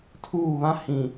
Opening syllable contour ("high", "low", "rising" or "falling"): falling